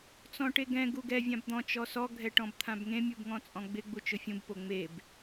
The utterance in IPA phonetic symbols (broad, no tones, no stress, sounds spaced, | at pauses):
t͡s ɔ̃ ʈ e ɡ ɛ̃ ɡ u ɡ ɛ vʲ ã b d̪ ɔ̃ t͡ʃ ɔ s ɔ ɡʱ ɛ ʈ ɔ̃ b t̪ʰ ã b ŋ ẽ mʲ u b ŋ ɔ̃ t͡sʼ ɔ̃ ɡ͡b ɪ ɡ͡b u t͡ʃ ʊ fʲ ũ b p o ŋ͡m e b